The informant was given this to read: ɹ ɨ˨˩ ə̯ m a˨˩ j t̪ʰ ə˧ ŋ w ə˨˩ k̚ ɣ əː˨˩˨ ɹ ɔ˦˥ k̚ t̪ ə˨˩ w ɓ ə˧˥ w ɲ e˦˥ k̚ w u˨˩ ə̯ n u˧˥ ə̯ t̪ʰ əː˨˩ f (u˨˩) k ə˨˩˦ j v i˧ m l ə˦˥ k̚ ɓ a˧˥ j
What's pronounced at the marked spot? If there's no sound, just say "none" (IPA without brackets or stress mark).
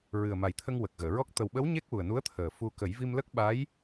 u˧